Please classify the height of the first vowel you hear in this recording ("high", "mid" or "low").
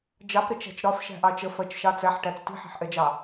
low